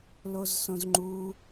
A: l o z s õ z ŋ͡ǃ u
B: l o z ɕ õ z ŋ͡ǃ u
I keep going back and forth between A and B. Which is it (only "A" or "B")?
A